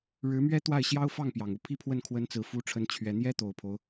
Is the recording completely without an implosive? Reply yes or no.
yes